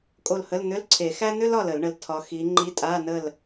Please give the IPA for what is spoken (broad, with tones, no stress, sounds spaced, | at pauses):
kʼ o˦˨ l h ə˧˥˧ l n̪ ʏ˧˥˧ l ǀʰ e˨˩˦ x æ˥ n̪ ʏ˥ l ɒ˦˨ l ə˨˩˦ l ɳ ə˨ l tʰ ɒ˨˦ x i˨˦ ŋ͡ǃ i˧˥˧ tʼ a˧˥˧ n ə˦˨ l